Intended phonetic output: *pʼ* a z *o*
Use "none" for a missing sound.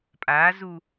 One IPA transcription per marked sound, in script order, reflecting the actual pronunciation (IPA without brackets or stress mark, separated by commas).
pʼ, u